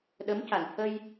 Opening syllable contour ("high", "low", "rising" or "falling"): rising